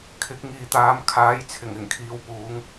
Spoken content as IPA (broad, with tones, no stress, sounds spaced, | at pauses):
kʰ ɪ˨˥ k̚ ŋ iː˨ t̪ aː˨˧ m kʰ aː˨˥ j t͡sʰ ɪ˨˩ ŋ ɪ˨˩ ŋ kʰ iː˨˧ w p uː˨˧ ŋ